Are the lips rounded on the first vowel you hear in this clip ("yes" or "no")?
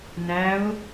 no